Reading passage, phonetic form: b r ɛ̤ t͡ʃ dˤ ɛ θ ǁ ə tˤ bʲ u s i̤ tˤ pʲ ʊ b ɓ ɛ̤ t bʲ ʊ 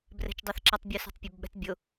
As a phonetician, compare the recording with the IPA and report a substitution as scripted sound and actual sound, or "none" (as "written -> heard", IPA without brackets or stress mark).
none